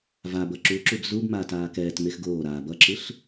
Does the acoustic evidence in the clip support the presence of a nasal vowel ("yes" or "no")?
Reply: no